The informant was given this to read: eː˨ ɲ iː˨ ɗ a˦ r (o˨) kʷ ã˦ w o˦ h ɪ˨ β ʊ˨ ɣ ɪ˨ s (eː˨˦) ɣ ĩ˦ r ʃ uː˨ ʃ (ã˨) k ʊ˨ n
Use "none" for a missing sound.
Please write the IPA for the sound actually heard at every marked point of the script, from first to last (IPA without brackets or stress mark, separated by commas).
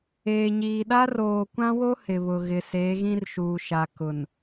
oː˨, eː˨˦, a˨